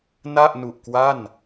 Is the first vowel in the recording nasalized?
no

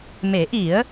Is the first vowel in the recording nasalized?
no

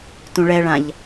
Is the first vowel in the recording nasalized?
yes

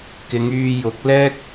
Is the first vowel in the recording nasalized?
no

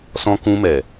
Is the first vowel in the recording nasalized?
yes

